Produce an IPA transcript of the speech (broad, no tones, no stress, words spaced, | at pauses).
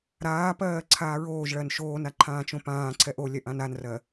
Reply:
ɾaːpɜː ǀʰaːɹoːʒɭɜn ʃoːna ǃʰãːt͡ʃõpãːǀʰɛʔ olʲɛʔ ãnanrɜ